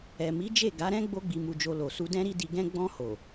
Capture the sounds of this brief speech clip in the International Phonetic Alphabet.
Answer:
ɛ˨ m i˨˦ d͡ʒ e˦˨ ɡ a˨˦ ɾ ɛ̃˦ ɡ͡b o˦ ɡ͡b i˧ m u˧ d͡ʒ o˧ l o˨ s u˧ d ɛ̃˦ ɾ i˦ d i˧ ɡ ɛ̃˦ ɡ͡b ɔ̃˧ h o˨

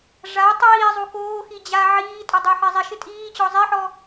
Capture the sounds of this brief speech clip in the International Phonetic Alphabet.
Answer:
ʐ a tˤ iː zˤ u k oː x i d͡ʑ a ʕ iː tʼ ɔ dˤ ɪː ħ ɪː zˤ i ʃ ɪ tʼ iː t͡ɕ ɔ zˤ i ħ ɔ

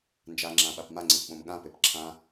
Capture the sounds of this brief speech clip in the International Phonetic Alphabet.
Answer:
n d͡ʒ a ŋ͡ǁ ã ɓ a p m a ŋ͡ǀ ɪ p ɓ õ m ɠ ã p e p ǁʰ ã

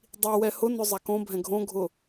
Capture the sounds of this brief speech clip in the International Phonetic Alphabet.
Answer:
dˤ i w ɛ h ʊ n ʊ zˤ a k õ bʱ ɛ̃ ɡʱ õ ɡʱ ʊ

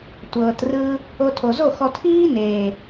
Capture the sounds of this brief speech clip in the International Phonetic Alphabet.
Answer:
tʷ ɤː˨ t r ɯ˧ | o˧ tʰ o˨ z o˦˨ x ɔ˧ tʰ iː˦ n eː˨

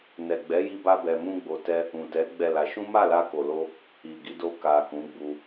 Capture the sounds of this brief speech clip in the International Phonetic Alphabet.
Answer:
n ɛ˨ ɡ͡b ɛ˨˦ j i˧ b a˧ b ɛ˧ m ũ˦ ɡ͡b o˧ t ɛ˦ | ũ˨ t ɛ˨˦ ɡ͡b ɛ˦˨ l a˧ ʃ ũ˦ m a˦˨ l a˧ k o˨ l o˧ | i˨ ɡ i˨˦ d o˧ k a˨ k ũ˨˦ ɡ͡b u˧

